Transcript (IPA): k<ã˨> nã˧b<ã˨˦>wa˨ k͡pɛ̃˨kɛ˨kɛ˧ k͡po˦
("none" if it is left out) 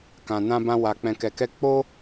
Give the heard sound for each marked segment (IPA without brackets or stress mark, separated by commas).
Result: ã˨, ã˧